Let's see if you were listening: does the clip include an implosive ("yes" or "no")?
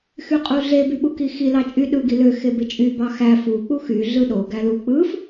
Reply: yes